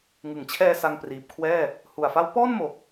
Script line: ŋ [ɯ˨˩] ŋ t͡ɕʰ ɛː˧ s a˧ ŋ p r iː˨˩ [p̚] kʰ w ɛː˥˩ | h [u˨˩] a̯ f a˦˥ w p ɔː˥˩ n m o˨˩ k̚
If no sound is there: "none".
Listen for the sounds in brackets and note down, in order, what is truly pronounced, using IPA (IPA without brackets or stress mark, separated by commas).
ɯ˩˦, p̚, u˨˩